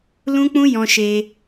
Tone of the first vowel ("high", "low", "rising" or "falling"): high